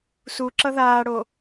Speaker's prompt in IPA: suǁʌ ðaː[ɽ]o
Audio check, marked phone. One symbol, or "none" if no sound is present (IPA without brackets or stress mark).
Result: ɽ